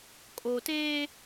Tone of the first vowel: low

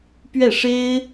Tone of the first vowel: falling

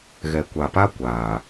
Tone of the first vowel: low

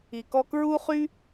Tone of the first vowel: low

